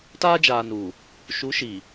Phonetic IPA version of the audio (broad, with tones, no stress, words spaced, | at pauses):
taː˦d͡ʒaː˨nuː˨ | ʃu˨˦ʃiː˨